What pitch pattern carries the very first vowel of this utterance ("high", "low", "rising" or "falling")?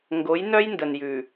rising